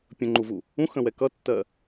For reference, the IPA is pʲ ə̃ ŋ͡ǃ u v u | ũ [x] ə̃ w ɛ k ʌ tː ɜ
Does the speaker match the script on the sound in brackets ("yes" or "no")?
yes